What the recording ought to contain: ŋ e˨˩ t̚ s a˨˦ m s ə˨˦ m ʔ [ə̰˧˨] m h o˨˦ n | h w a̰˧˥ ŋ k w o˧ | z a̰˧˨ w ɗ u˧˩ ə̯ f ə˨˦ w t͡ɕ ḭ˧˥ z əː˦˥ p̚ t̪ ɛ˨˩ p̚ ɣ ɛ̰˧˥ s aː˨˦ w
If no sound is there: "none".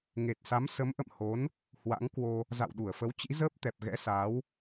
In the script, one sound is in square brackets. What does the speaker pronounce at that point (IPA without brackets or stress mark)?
ə̰˧˨